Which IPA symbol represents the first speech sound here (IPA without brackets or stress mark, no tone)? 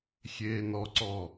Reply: xʲ